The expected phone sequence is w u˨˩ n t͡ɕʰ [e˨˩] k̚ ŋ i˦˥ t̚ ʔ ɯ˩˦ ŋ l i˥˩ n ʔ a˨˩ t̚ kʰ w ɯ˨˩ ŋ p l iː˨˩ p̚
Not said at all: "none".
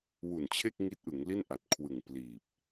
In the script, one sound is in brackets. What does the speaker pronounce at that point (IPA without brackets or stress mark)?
e˥˩